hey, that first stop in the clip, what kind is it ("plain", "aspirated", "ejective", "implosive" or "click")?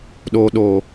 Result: implosive